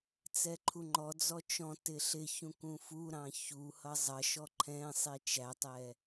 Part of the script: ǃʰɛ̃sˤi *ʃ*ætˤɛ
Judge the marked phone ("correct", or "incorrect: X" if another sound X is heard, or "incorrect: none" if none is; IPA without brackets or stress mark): incorrect: t͡ʃ